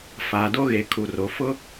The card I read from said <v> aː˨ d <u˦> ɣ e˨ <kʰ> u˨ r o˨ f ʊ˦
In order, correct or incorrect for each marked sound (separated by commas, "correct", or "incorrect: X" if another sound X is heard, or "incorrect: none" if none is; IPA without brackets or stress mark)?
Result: incorrect: f, incorrect: o˦, correct